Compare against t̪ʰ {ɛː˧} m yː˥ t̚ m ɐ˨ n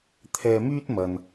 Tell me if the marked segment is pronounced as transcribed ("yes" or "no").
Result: yes